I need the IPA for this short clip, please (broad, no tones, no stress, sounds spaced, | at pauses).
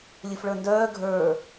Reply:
lʲ ɨ f ɭ ə˞ n d œː ɡʱ ə˞